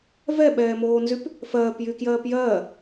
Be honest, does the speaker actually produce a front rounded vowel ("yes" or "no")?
yes